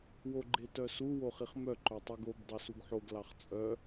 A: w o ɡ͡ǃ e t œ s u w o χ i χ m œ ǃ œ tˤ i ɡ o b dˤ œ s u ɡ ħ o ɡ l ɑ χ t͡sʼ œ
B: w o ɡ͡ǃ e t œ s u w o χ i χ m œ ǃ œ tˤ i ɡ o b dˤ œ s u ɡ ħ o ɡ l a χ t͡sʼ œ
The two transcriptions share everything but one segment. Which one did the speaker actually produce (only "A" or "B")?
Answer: A